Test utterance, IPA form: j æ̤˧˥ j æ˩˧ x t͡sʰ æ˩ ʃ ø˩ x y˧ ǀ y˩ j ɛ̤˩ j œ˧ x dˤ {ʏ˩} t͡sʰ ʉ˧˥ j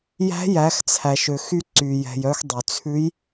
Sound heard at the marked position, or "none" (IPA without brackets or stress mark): y˩